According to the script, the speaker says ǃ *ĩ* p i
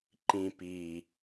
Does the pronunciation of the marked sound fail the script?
no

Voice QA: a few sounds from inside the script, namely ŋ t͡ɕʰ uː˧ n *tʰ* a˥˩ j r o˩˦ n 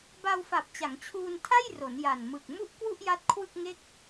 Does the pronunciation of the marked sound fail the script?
no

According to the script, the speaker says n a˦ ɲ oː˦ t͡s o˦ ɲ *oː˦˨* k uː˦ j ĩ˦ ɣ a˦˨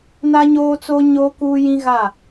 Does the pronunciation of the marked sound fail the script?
yes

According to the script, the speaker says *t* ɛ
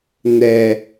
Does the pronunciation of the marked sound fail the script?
yes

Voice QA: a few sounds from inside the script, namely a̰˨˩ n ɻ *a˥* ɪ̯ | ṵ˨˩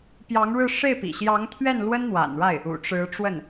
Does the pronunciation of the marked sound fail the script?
yes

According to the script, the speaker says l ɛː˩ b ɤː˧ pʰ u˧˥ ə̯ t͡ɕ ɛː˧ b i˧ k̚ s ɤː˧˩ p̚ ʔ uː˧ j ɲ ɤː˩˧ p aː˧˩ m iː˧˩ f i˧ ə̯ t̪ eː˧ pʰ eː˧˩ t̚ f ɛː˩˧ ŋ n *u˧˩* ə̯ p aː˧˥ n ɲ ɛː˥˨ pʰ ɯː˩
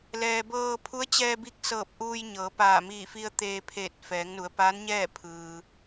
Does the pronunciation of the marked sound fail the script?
yes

